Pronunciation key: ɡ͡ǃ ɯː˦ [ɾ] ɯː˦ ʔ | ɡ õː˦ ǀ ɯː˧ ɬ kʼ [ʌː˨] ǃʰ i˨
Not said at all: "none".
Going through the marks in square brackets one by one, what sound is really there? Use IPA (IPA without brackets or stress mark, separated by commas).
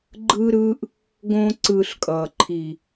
ɾ, ʌː˨